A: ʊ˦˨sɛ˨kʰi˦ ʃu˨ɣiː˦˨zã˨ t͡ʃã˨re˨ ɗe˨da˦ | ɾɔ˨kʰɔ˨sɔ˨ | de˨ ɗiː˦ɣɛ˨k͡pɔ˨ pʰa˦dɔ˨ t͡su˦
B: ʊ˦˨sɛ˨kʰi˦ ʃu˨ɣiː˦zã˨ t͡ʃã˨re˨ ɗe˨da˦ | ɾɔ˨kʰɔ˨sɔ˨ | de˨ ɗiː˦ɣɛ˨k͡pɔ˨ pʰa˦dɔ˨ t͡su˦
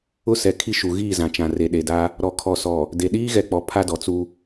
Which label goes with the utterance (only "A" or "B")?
A